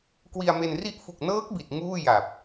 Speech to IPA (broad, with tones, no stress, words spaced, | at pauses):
kwi˧a̯me˧nri˥˩ʔ fu˨˩k̚nɤː˦˥k̚bi˨˩t̚ ŋuː˥˩ja˨˩p̚